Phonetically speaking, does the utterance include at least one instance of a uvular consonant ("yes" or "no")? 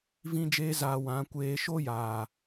no